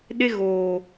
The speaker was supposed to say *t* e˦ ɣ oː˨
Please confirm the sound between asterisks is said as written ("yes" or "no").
no